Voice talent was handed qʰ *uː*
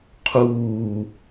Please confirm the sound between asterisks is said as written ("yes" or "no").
yes